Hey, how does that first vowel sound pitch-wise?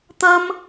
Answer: high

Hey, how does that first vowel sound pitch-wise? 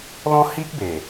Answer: high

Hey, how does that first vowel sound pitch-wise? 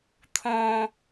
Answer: low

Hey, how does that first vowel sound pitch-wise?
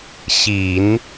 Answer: low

